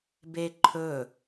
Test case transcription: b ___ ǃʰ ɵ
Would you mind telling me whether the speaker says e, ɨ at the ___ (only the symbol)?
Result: e